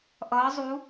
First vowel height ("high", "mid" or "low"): mid